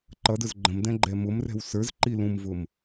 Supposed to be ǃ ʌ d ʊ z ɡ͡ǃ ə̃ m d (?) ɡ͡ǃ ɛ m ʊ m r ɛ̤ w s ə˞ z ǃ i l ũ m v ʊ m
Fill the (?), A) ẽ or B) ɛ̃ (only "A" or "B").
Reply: B